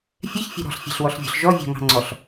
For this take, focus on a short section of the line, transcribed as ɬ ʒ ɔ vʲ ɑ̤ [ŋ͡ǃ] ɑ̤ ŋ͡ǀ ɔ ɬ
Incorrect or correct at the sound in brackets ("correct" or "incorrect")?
incorrect